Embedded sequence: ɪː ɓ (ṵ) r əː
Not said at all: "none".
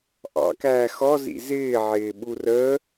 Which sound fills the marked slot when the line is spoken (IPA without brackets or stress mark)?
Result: u